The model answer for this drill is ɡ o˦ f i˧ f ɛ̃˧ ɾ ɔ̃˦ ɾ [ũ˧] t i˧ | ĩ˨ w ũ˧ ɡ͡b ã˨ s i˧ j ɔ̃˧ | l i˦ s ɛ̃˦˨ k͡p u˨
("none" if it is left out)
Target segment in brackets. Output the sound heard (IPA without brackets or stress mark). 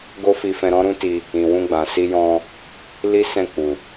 ũ˦